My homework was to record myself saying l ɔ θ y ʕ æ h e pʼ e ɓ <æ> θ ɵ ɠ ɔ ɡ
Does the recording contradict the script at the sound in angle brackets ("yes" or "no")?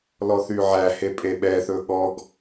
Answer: yes